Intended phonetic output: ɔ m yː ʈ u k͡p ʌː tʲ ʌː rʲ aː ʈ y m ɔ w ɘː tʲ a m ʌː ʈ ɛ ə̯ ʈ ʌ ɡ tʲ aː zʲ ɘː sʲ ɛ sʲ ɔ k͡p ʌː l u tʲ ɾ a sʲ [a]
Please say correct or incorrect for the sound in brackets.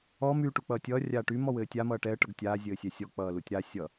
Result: incorrect: ʌ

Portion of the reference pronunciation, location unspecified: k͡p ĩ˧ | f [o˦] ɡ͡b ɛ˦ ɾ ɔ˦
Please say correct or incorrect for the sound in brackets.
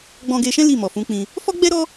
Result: incorrect: ɔ˦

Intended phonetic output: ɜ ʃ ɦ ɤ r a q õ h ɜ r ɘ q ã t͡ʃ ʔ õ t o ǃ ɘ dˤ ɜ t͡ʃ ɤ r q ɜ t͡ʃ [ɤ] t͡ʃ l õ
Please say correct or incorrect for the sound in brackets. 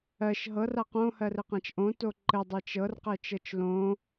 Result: correct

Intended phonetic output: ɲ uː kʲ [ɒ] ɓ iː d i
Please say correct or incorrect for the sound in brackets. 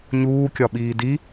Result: correct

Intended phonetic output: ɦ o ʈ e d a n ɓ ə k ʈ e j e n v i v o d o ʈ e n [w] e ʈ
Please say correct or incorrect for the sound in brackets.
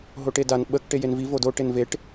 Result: incorrect: v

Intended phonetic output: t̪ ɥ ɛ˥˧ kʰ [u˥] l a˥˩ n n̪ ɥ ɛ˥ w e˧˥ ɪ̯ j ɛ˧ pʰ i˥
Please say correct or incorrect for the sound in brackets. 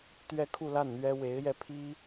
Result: incorrect: u˥˧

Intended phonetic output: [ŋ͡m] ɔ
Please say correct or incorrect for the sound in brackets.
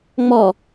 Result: correct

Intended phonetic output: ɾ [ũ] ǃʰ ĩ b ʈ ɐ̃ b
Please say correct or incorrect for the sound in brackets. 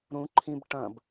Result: correct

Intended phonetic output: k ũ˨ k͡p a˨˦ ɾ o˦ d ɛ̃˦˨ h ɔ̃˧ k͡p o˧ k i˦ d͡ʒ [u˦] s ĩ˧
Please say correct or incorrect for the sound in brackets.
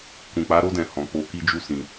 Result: correct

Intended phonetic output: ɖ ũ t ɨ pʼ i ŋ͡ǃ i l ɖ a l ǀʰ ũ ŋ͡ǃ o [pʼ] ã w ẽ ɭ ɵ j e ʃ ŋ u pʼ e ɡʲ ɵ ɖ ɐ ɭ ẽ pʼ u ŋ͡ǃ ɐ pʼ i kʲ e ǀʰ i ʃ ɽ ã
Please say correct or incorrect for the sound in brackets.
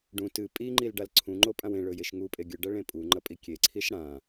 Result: correct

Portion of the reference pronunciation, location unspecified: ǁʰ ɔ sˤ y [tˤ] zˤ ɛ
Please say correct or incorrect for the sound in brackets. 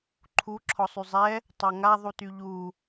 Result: incorrect: none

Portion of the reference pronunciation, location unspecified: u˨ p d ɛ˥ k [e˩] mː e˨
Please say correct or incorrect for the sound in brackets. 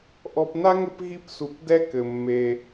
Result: incorrect: ɘ˩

